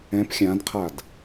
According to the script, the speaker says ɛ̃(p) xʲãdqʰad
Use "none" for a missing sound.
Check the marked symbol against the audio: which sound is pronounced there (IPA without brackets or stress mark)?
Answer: p